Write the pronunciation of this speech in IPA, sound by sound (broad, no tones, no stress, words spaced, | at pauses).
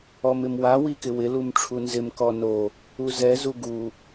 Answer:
ɔmɪmwa wikɪwɪ lumʈ͡ʂʰunzɪm kɔno | uzɛ zuɡu